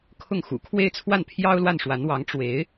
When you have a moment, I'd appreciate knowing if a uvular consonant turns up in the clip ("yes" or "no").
no